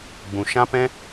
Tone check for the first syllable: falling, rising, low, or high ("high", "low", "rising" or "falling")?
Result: low